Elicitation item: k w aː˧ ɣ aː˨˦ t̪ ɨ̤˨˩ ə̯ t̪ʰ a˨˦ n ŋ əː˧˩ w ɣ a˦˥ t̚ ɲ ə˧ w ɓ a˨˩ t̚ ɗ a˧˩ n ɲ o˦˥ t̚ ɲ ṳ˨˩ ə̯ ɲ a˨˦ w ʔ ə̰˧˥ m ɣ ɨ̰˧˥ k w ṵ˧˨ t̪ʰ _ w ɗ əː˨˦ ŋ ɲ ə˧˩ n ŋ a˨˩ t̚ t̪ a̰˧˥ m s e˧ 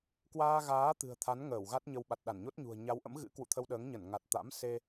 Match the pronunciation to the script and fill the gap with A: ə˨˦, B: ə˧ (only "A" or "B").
B